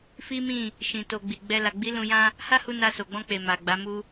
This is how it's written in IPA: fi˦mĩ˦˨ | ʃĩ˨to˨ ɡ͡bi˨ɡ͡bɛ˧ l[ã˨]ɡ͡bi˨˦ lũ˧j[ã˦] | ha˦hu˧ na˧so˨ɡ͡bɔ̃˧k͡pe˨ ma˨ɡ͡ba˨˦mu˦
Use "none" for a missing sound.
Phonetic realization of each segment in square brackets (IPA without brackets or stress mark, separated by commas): a˨, ã˦